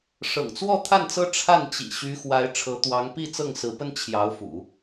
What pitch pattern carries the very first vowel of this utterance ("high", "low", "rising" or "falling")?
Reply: low